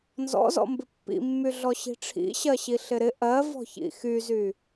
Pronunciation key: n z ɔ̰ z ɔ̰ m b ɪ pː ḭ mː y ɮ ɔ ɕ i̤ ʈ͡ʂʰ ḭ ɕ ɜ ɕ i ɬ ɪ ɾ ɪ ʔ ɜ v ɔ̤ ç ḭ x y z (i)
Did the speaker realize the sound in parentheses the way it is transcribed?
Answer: no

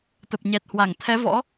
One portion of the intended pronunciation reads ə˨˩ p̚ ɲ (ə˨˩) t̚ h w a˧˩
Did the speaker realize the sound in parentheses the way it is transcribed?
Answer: no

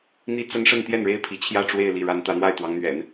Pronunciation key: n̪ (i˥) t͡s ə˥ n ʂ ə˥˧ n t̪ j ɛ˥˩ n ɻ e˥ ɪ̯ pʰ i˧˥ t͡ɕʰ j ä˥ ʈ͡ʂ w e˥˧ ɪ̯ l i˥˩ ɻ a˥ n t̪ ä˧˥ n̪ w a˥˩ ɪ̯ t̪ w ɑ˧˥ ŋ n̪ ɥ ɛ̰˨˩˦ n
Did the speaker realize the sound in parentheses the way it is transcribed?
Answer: yes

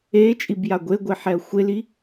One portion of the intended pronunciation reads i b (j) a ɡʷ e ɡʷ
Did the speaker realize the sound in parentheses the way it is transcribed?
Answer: yes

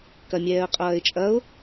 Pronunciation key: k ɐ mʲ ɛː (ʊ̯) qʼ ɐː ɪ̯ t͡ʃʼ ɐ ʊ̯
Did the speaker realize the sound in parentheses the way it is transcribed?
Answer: no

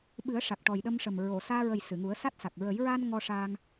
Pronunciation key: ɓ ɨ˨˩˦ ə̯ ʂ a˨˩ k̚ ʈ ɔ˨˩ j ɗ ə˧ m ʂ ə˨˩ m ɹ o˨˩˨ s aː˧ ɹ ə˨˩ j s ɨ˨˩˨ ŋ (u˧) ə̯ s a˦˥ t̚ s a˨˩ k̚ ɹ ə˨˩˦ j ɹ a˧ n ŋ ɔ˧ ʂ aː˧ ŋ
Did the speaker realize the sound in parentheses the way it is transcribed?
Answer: no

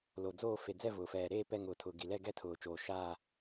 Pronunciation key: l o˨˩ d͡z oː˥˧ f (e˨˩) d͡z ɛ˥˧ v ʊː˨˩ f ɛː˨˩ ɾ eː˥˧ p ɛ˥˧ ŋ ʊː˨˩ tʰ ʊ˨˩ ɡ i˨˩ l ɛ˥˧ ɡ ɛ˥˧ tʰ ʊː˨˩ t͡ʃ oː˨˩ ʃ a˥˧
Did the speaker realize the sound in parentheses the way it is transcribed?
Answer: yes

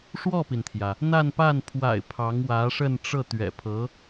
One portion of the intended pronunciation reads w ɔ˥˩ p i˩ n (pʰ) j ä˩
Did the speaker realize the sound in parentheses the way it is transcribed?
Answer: no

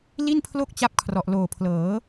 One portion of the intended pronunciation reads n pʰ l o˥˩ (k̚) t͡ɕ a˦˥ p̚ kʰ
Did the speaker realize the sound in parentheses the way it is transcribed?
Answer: yes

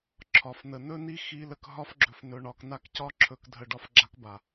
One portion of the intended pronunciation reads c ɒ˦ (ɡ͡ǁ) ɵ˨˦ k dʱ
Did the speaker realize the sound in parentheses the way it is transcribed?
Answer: no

